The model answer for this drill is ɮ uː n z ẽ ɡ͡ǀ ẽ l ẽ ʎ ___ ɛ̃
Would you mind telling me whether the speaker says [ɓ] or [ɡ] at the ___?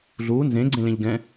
ɡ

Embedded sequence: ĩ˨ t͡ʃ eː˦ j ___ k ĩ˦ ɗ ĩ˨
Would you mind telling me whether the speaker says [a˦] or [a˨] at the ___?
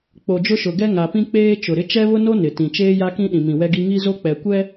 a˦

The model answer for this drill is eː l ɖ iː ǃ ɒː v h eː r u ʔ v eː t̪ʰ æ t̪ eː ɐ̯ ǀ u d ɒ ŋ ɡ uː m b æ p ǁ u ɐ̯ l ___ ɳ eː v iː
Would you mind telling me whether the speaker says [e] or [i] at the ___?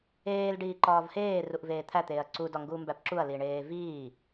i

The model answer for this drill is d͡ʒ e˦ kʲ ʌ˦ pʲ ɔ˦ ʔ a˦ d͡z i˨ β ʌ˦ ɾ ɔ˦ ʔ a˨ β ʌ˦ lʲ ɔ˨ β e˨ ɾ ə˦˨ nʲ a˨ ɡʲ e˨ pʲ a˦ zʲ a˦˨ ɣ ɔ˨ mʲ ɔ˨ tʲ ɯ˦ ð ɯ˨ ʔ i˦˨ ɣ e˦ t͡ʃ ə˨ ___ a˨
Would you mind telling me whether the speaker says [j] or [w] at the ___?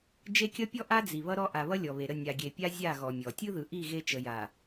j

